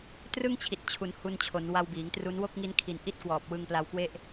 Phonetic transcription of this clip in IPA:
trɯ˥˩ŋt͡ɕʰi˨˩t̚ t͡ɕʰu˩˦n hu˧nt͡ɕʰo˩˦n wa˧wbiː˩˦ŋtru˦˥n wo˥˩k̚ŋi˦˥n kʰi˨˩n ʔi˥˩t̚kwɔː˨˩p̚ wɯ˧ŋpla˧wkwe˥˩ʔ

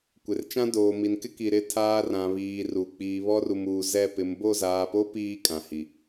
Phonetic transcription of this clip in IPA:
kʷɪ˨rt͡ʃã˦ doː˨mi˨nkɪ˦ki˨ ɾɪ˦˨tʰaː˦rã˨βiː˨ ru˨ k͡piː˨βɔ˦ru˨muː˨ zɛ˦˨pɪ˨˦m bo˦˨zaː˨po˦ piː˦kʼã˨hi˨

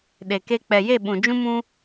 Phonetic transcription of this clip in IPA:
ɗe˨ke˧ k͡pɛ˨je˦˨ ɓũ˨d͡ʒũ˦mũ˦

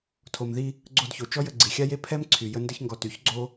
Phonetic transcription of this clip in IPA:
tʰo˨mði˧ | ɡ͡ǀo˧dço˨ t͡ʃɔ˦jə˧ ɡ͡ǀi˨xʲa˦je˦ pʰɛ˦mǀʰy˨ jə˧ndə˧çŋɡɔ˨ ty˨˦çɡ͡ǀo˦

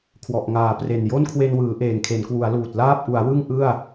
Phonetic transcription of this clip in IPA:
kʰwɔ˨˩ʔŋaː˩˦pre˨˩n jo˥˩nkʰwe˧nwɯː˩˦ ʔeː˨˩ŋkʰe˩˦nkwu˩˦a̯luː˨˩t̚ laː˥˩p̚ʔu˩˦a̯wɯ˥˩ŋ ʔɯ˥˩a̯

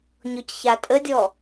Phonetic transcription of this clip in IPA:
ɲɔcçatʼədʲɔ

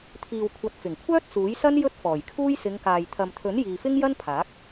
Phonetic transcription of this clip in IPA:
t̪ʰiː˨wkʷʰɐ˨˥t̚fɪ˨˩ŋkʷʰœː˥t̚ t͡suː˨˥jsɐ˥n jɵ˥t̚fɔː˨˩jkʰuː˥j sɪ˨˧ŋkaː˨j t̪ʰɐ˨mt̪ʰɵ˨˥n jiː˨fɪ˥ŋjɐ˥n pʰaː˨˥k̚

